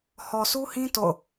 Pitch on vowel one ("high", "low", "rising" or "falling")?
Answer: low